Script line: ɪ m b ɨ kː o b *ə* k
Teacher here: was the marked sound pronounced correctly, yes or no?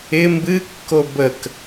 yes